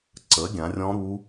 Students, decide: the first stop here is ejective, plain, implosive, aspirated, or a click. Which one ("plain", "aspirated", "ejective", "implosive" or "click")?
click